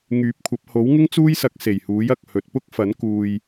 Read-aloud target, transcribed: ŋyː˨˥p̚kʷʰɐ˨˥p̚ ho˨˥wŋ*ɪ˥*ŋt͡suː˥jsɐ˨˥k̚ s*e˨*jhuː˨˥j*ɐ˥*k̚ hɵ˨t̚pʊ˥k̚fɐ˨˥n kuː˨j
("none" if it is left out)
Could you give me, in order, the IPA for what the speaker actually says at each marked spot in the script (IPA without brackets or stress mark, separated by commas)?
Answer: ɪ˥, e˨˩, ɐ˨